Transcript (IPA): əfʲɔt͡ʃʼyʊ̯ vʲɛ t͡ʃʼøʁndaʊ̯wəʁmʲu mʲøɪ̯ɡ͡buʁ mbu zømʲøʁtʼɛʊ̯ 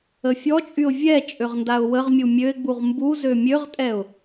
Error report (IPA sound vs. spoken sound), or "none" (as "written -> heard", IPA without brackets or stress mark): none